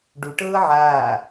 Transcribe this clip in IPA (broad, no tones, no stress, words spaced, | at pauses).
ɖuʈɤː ʕaː